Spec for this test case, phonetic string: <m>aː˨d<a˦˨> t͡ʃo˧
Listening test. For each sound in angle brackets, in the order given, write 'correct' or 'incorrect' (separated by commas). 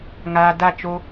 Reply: incorrect, correct